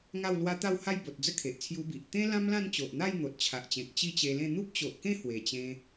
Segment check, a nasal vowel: present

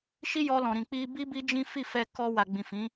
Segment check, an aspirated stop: absent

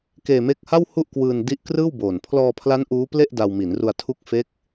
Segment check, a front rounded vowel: absent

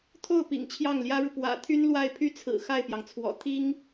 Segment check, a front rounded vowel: present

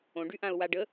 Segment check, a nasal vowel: present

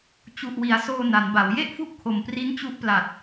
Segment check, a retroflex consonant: absent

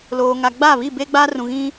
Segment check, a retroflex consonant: absent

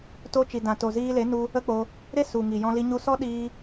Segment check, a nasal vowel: present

